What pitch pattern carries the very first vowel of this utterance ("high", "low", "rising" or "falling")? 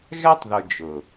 high